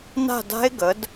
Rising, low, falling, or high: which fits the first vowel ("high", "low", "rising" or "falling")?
falling